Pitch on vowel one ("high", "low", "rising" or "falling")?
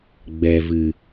low